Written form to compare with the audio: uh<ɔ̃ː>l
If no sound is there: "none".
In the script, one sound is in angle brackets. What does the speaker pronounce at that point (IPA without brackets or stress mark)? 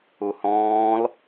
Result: ɔ̃ː